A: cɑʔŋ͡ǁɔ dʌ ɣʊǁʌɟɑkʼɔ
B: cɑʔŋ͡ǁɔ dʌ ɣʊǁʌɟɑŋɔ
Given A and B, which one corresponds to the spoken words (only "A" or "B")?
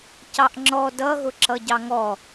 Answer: B